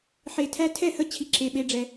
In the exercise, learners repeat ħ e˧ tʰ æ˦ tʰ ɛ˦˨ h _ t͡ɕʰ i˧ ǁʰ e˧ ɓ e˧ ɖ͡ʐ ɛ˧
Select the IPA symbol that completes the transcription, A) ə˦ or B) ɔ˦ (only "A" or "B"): A